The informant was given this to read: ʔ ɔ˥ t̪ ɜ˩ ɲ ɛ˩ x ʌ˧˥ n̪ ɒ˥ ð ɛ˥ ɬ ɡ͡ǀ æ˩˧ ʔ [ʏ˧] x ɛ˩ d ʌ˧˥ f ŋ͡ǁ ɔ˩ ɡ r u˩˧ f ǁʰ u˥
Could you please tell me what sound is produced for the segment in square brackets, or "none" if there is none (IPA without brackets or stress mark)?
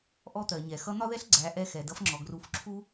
ɛ˧